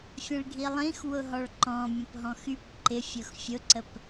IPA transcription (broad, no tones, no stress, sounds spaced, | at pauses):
fʲ ə̃ ɭ ɡʱ i lˠ ĩ x w ʊ ɦ ɔ ɭ ǃ ɔ̃ mʲ ə̃ p ɦ ɔ̃ x y p ǃ ɪ fʲ ʊ x fʲ ʊ ǀ ə p